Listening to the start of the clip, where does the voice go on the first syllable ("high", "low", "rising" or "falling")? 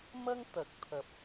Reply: high